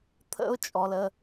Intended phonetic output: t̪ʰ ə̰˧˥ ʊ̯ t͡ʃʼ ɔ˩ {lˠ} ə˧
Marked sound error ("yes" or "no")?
yes